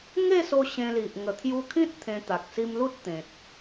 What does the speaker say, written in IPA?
ŋ e˥˧ s o˧ ɕ ẽ˧ l i˨ ʔ ŋ ə˨˩ t̪ʰ j u˧ kʰ ĩ˦ t̚ t̪ʰ ẽ˧ t̪ a˨ k̚ s i˧ m l u˦ t̚ t̪ ẽ˨ t̚

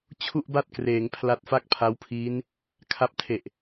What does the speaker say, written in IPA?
t͡ɕʰ u˥˩ ʔ b a˥˩ t̚ k r eː˩˦ ŋ pʰ l a˦˥ t̚ f a˥˩ k̚ pʰ a˦˥ w pʰ iː˦˥ n | kʰ a˦˥ p̚ tʰ e˨˩ ʔ

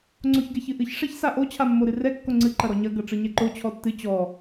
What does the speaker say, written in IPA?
ŋ͡ǀ o ç ɡ ɛ ç ɨ ʔ ɨ ç ʂ ɛ ç s a ʔ o t͡ɕʰ a mː o ɾ ɨ r ɛ kː o ŋ͡ǀ ɨ ǃ ɐ ɾ ɔ ɲ ɐ ɡ ɐ ʈ͡ʂ ɨ ɲ ɛ ǃ o t͡ɕʰ ɔ tː ɨ t͡ɕ ɔ

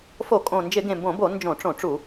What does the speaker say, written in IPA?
f o˧˩˧ kʼ õ˨˩ n d͡ʒ ɪ˧˩˧ ɡ ẽ˨˩ m b õ˧˩˧ b o˧˩˧ n d͡ʒ õ˧˩˧ ʈ͡ʂ õ˧˩˧ ʈ͡ʂ u˧˩˧

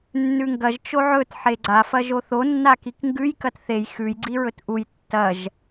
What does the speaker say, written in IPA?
nː ʉ ŋ ɡ ɐ ʒ t͡ʃ o ʕ ɵ t ħ e ɡ͡ǀ a f ɐ ʒ o θ o nː a k i k ŋ ɡ ʉ j k ɐ t θ e j x ʉ j ɡ͡ǀ i ɹ ɵ t ʔ u j tː ɐ ʒ

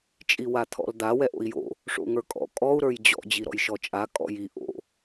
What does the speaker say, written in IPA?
t͡ʃʼ i w a t̪ʰ ɔ̰ l d̪ a w ɛ ʔ o̰ i̯ j o̰ | ʂ o̰ ŋ ə˞ kʼ ɔ̰ kʼ ɔ u̯ ɾ ə˞ j d͡ʑ ɔ̰ d͡ʑ i ɾ ɔ̰ j ʃ ɔ t͡ʃʼ a kʼ ɔ̰ j i ʔ o̰

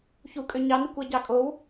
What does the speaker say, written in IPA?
ç u kʼ ø ɲ ɑ n i kʷ æ ɟ ɑ kʼ o w

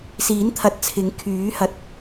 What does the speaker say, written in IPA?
s iː˨˥ n t̪ʰ ɐ˨ t̚ t͡sʰ ɪ˨˥ ŋ kʰ yː˨˥ h ɐ˨ t̚

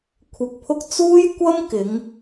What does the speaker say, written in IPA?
kʷʰ ɪ˧ k̚ pʰ ʊ˥ k̚ t͡s uː˥ j kʷ ɐ˥ m k ɪ˨˧ ŋ

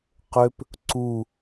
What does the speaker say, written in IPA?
q ø p | ǀ u

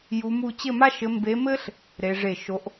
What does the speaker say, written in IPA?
j u˧˥ m u˥˧ t͡ɕ ɘ˥˧ m a˥ ʃ ɘ˧˥ m b e˧˥ m ɘ˥ ɬ | ɾ e˧˥ ʐ e˥˩ ʃ o˧˥ ʔ

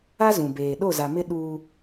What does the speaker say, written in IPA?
a˦ z ũ˨ b eː˨ ɗ o˦˨ z a˨ m ɪ˦ ɗ u˦

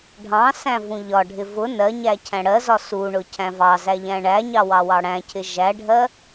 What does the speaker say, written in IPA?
ɖʱ ɑ̃ s æ̃ v ũ ʎ ɒ ɖʱ ɪ v ʊ n ɜ ɲ æ cʰ æ̃ ɽ ɜ z ɒ s u ɳ ʊ cʰ æ̃ v ɑ z æ ʎ æ̃ ɳ æ ɲ ɑ w ɑ w ɑ ɽ æ̃ cʰ ɪ ʒ æ ɖʱ ɜ

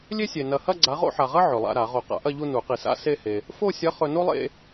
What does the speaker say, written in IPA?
lʲ e˥ sʲ e˨ n ɐ˨ h ɐ˥˧ ɡ͡ǀ a˨˥ ʁ o̰˥˧ ħ a˨ ʁ ɐ˥ ʕ ɵ˨ lˠ a̰˥˧ ɾ a˨˩˦ ʁ o˨˩˦ q a̰˨˥ ʔ ɐ˥˧ ʎ u˥˧ n u˨˩˦ q i˨ s a̰˥ s e˥˧ h e˨ | f o˥˧ sʲ ɐ˨˥ χ ɵ˨ n o˥ lˠ ḛ˥˧

